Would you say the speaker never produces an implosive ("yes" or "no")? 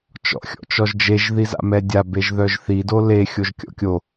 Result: yes